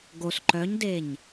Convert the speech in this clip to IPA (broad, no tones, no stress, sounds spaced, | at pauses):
ɡ o s ǃ œ ɲ d e ɲ